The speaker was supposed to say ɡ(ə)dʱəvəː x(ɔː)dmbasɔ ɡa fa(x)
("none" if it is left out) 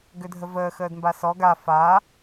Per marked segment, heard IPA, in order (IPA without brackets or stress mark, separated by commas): ʏ, əː, none